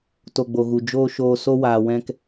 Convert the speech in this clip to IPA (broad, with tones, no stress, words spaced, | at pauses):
to˨ ɡ͡bo˨ɣu˨ d͡ʒoː˦ʃoː˧ so˦waː˨wɛ̃˧k